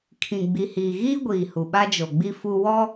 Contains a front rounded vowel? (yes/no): no